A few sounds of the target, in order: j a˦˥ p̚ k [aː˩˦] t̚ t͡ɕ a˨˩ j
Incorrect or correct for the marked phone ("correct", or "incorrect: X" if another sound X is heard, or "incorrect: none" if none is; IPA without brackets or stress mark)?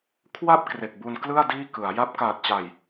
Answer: incorrect: aː˨˩